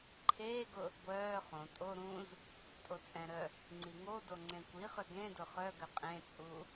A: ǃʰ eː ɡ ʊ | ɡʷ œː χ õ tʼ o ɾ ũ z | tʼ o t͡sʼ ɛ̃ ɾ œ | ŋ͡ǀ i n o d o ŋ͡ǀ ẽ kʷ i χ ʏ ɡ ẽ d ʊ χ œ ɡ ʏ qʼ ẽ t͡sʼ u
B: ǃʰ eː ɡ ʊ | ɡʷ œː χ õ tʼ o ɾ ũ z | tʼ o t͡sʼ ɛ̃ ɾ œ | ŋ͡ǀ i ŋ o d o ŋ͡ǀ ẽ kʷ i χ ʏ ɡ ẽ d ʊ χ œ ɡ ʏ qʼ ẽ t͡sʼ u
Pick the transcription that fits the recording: B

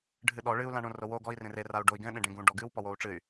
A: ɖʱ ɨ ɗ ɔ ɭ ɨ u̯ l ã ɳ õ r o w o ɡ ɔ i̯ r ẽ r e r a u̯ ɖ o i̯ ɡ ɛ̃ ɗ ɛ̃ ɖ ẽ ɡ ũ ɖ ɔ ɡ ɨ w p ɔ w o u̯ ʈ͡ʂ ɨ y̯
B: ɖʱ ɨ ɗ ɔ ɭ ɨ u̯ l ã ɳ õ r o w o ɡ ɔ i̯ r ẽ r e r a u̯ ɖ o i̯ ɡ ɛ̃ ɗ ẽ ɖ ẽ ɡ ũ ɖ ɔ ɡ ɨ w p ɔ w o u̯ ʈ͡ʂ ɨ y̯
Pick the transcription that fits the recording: B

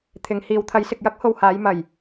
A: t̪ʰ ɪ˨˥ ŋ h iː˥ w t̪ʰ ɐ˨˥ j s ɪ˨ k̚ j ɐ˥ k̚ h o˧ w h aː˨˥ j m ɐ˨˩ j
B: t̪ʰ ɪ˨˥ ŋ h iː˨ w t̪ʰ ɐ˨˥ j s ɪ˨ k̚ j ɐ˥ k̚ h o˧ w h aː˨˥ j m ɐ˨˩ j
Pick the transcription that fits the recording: B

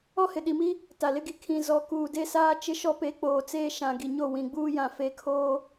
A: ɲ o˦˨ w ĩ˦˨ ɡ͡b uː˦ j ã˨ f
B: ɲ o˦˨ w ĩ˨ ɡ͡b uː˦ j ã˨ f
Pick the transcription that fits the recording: B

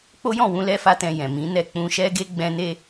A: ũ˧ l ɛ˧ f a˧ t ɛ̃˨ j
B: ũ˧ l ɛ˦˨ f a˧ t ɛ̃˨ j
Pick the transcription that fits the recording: A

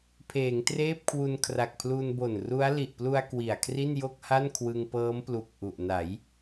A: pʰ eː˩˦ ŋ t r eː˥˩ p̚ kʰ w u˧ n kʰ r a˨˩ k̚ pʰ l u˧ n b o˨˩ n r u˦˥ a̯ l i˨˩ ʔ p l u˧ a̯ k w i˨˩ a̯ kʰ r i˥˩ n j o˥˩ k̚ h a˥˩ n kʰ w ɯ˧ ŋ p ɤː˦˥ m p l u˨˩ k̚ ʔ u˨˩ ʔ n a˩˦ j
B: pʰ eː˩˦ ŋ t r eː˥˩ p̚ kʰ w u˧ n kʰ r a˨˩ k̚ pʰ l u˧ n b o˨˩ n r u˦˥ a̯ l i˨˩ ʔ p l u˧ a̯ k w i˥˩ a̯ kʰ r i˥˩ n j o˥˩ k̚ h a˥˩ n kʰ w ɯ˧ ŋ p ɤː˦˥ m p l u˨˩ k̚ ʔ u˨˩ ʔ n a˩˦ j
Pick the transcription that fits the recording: A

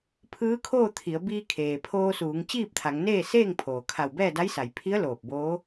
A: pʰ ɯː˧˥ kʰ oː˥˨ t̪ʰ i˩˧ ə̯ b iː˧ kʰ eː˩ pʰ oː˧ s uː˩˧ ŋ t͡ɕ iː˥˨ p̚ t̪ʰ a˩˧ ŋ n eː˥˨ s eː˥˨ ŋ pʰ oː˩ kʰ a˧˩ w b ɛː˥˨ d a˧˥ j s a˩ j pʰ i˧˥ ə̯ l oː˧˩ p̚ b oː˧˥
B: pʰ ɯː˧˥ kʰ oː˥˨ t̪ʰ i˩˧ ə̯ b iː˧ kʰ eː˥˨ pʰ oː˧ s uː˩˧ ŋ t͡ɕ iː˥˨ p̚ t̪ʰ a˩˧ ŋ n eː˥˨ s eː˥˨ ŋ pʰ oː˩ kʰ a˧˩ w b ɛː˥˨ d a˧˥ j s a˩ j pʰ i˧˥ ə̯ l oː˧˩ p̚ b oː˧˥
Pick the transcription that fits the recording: A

